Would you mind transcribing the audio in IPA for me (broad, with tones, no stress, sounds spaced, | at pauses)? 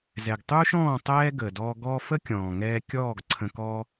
z ɛ˨ ɡ tˤ uː˦ ʃ ɔ̃ː˦˨ tˤ ɛː˧ ɡ ə˨ d ɔː˧ ɡ ɔː˧ f ə˦ kʲ ɔ̃ː˨ ŋ ɛː˧ kʲ ɔː˦˨ ɡ ǀʰ ə̃˧ k ɔ˦